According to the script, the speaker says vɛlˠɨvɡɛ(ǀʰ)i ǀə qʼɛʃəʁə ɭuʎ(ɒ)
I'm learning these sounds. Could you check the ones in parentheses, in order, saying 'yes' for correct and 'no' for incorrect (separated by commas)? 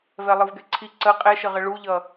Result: yes, no